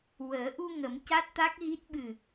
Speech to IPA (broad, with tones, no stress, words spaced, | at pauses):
wəː˨˩˦ʔu˧ŋə˨˩˦m ca˦˥t̚t̪a˦˥k̚ɣi˦˥t̚ ɓɨ˨˩